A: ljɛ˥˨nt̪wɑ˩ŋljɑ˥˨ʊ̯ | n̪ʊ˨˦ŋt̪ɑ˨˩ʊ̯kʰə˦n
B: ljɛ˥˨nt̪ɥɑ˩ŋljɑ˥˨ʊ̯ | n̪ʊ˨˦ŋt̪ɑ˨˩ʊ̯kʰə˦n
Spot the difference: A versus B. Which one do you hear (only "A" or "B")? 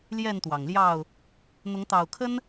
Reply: A